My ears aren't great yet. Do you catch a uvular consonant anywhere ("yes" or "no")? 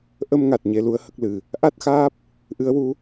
no